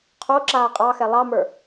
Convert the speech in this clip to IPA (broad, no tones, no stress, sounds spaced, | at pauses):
qʰ o ǁ aː qʼ ɑ x ɛ lˠ ɑ m ə˞